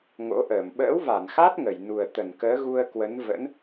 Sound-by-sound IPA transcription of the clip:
ŋo̰˧˥ʔəː˧˩m ɓə̰ː˧˥wva˧˩nxa˦˥t̚ ŋə˧˩jnu˨˩ə̯t̪ə˧˩n kəː˨˦ɣu˧ə̯kwə˨˦n və̰˧˥n

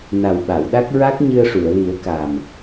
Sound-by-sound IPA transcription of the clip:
na˨˩w ɓa˨˩˨wɗa˦˥k̚ ɹa˦˥k̚ɲɨ˧ə̯ʂu˨˩˨ə̯ li˨˩˦ə̯kaː˨˩m

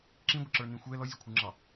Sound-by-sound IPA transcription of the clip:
ǁĩɡʷəǁə˞nĩ xʷɛ lɔzʲəkʷʰə˞ŋ͡ǁɑ

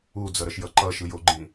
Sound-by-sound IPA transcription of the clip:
ud͡zʌɾʌʃjʌ ǃʌʃɯjoɡ͡ǃĩ

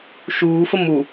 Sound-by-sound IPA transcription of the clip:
ʃuːfə mu

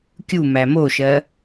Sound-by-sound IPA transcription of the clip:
kʲumæ moʃɜ

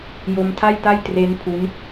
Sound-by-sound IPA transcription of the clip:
jo˧mtʰa˥˩jta˥˩j tre˦˥n pʰu˦˥n

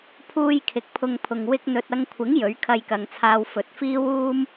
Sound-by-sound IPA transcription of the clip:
pʰuː˧j kʰɪ˨˥k̚pʰʊ˧ŋpʰʊ˨ŋ wɪ˧k̚n̪ɵ˨t̚ɐ˧ŋkʷʰɪ˨˥ŋ jɵ˨˥ɥkʰɐ˧jkɐ˨ŋt͡sʰaː˧w fɵ˨t̚fiː˥wuː˥m

